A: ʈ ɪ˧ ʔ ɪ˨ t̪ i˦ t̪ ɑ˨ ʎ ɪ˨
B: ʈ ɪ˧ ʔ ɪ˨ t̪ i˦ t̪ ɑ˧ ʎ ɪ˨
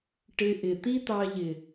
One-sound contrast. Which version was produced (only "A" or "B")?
B